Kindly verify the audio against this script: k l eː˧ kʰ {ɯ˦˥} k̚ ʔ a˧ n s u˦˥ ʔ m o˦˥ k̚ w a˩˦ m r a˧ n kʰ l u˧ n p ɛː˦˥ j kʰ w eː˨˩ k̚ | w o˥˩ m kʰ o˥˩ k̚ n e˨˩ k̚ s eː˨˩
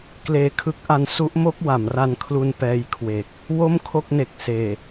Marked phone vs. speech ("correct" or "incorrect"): correct